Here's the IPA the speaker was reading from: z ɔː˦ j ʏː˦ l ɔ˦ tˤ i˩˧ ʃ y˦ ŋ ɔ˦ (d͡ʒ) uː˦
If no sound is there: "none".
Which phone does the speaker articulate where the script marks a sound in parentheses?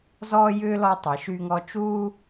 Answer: t͡ʃ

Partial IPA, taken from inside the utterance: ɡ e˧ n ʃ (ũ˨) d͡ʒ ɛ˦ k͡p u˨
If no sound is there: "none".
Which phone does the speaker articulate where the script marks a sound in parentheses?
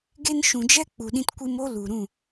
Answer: ũ˨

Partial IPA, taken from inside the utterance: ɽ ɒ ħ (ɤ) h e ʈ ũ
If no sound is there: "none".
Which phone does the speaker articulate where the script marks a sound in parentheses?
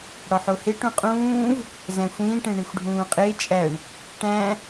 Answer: o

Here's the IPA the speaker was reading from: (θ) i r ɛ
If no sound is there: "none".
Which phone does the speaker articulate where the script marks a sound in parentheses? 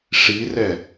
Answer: ʂ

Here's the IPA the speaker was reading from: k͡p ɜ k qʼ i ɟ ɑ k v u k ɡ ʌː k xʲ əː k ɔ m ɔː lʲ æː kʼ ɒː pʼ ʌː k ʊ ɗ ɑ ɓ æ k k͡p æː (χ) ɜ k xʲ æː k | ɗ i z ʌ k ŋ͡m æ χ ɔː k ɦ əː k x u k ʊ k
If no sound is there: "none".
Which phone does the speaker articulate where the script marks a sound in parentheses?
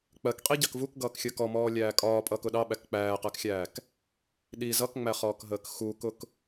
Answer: q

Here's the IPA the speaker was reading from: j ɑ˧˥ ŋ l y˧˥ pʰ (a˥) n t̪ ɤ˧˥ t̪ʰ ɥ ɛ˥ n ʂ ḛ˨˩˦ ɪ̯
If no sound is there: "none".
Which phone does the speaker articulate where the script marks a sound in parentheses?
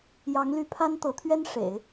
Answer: a˥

